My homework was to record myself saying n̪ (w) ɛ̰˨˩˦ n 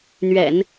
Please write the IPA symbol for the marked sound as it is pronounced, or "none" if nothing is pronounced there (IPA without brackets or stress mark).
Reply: ɥ